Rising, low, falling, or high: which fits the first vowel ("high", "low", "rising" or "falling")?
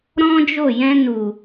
high